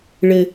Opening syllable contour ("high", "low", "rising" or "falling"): low